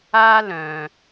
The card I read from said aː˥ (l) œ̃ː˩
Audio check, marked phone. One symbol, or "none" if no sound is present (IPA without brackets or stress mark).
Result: l